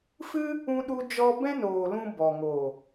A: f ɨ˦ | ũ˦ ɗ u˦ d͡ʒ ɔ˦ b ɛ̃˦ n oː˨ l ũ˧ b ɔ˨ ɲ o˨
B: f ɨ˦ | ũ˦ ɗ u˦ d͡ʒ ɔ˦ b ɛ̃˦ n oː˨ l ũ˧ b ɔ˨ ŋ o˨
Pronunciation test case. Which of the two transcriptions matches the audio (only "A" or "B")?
B